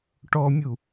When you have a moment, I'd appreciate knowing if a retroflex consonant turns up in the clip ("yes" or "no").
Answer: yes